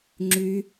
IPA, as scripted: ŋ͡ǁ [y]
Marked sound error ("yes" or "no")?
no